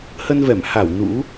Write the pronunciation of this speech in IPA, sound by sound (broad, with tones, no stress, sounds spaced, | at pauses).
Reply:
h ə˧ n v ɛ˧˩ m h a˧˩ w n ṵ˧˥